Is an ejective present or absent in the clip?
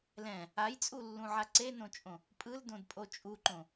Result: present